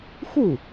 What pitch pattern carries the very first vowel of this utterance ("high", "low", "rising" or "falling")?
falling